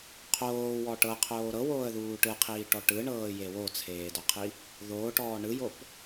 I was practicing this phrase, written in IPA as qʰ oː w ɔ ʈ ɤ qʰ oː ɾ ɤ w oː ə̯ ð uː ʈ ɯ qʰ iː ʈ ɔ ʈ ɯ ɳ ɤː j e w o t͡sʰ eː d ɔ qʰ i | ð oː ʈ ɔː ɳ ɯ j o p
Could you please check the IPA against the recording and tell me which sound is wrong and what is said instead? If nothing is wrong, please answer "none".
none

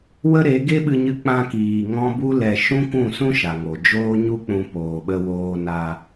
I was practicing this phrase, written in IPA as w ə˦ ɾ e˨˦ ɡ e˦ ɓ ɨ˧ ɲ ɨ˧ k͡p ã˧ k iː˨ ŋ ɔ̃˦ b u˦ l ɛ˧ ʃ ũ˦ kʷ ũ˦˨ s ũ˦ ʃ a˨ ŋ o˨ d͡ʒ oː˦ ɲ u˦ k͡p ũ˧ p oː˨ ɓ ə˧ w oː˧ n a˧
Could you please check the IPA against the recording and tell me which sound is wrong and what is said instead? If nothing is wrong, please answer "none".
none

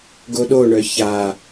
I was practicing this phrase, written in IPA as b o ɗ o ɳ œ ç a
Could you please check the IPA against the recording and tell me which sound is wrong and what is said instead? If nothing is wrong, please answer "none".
b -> ɡ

